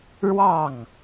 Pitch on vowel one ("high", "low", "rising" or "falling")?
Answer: falling